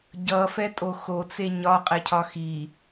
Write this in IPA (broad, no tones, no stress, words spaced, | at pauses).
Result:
ɟʌfɛtʼo xot͡se ɲɒqʼɛcʰɒ xi